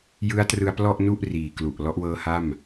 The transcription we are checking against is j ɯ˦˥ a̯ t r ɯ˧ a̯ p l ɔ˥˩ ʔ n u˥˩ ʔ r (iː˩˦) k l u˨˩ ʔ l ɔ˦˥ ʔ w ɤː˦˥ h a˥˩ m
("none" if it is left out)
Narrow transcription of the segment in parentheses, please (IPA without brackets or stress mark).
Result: iː˨˩